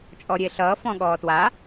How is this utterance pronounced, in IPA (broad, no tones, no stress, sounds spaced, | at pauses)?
t͡ʃʼ ɔ ɾʲ e ɬ ʌː f ɔ̃ ɠ ɔː t w a